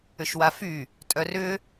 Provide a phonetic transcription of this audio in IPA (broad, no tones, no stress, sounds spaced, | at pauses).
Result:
ʏ ʃ w a f y | tʼ œ r ʏ